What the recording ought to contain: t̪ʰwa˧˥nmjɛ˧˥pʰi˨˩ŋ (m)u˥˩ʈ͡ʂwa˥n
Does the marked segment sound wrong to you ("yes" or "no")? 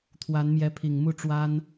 no